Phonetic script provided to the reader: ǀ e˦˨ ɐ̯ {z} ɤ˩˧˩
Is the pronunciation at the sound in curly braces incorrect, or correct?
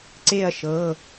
incorrect